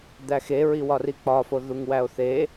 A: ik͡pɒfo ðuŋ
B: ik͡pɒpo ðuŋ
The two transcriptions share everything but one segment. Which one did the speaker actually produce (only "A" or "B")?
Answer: A